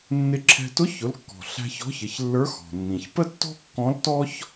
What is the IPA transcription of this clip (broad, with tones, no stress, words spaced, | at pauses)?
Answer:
nːɪ˧ǁʰɛ̤˧ tʊ˧˥çʊ˩˧lkːɔ̤˩ ɬæ̤˧çɔ̤˧˥çɪ˩˧çlːə˞˧˥ xɔ̤˩nːĩ˩ç pə˥tːɔ̤˥kːɔ̃˧˥ltɔ˥ç